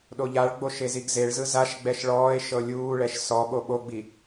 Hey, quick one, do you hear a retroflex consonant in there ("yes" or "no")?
yes